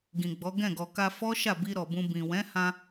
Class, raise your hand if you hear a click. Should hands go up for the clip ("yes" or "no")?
no